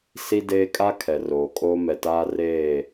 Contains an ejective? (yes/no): yes